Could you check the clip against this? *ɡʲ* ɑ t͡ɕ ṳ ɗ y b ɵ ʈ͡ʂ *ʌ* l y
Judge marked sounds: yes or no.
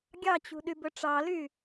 yes, no

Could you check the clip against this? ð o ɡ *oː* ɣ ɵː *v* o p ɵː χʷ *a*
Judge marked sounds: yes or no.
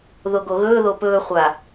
no, no, yes

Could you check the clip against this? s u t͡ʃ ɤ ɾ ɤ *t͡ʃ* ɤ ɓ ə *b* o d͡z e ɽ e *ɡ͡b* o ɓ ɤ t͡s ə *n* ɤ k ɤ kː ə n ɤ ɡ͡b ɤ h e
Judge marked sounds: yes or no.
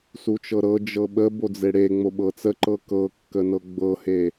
no, yes, no, no

